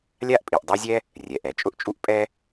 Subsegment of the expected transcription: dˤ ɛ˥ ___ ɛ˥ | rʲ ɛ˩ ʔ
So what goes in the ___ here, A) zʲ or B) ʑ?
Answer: A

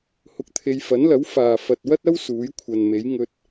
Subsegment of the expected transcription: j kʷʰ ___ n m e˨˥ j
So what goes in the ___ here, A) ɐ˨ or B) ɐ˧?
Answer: A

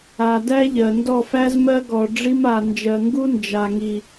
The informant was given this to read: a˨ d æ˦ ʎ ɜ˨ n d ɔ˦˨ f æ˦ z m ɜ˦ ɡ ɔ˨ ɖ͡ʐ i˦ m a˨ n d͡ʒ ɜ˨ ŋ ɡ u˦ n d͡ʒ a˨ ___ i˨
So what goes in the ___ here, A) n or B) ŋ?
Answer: B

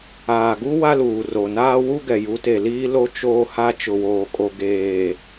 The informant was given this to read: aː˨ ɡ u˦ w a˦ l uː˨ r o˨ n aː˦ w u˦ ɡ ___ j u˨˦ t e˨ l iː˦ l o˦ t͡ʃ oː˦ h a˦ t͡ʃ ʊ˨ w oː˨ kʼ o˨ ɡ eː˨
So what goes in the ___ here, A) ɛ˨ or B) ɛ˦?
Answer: A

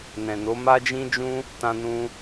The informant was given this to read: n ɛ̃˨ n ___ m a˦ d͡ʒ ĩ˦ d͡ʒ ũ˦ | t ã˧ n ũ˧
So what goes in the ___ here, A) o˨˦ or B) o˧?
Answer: A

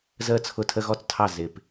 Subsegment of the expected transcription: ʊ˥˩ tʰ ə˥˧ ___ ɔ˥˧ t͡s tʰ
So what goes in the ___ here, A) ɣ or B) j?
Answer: A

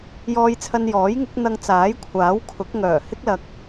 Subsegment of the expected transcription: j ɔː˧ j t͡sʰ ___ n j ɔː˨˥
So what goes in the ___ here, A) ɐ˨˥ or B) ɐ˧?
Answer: B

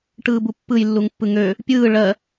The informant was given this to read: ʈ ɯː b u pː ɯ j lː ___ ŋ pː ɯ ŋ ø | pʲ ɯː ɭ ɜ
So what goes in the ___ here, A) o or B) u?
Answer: B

